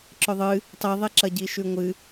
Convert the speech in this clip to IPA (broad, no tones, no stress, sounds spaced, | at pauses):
ǁ ɵ ðˤ ɨ | tˤ i ðˤ e ǁ ɐ ɟ i ʃ ʉ ŋʷ ɨ